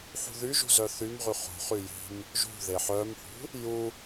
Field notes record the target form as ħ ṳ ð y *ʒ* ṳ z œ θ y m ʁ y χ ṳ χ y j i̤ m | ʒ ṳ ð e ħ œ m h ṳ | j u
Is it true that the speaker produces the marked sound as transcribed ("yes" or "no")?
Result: yes